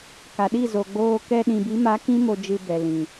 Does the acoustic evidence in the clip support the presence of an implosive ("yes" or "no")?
yes